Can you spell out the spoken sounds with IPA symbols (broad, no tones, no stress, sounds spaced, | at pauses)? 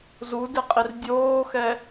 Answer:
z u d e qʼ i r dʲ oː x ɛ